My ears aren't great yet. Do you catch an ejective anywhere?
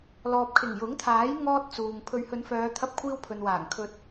no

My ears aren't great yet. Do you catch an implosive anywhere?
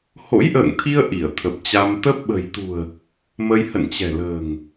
yes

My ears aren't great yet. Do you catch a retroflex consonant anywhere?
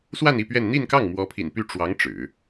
yes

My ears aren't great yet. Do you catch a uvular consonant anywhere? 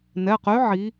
yes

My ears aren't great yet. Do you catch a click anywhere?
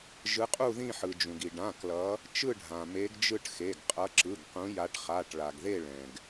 yes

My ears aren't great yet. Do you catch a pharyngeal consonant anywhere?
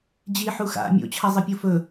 yes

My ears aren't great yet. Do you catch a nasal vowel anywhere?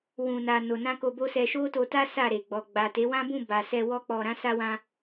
yes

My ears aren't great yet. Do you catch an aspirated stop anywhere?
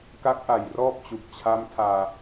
yes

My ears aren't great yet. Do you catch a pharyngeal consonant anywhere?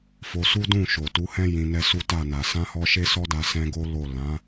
no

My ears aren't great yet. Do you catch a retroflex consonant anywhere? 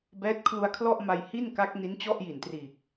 no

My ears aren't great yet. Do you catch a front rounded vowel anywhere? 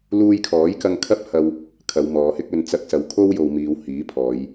no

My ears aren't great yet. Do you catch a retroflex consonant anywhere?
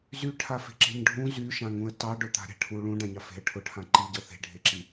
yes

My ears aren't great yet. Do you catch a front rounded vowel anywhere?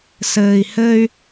yes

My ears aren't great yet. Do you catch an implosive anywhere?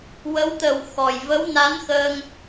no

